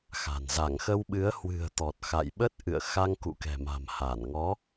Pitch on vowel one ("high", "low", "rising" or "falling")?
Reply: low